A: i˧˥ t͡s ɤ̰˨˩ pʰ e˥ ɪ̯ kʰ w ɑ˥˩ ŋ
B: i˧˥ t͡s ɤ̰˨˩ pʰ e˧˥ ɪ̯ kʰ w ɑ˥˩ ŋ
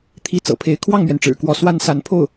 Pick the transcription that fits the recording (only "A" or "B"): B